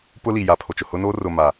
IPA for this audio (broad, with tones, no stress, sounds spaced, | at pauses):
p ʊ˦ l i˨ j a˨ pʰ o˨ t͡ʃ ʊ˨ h ʊ˦ n oː˦ r ʊ˨ m a˨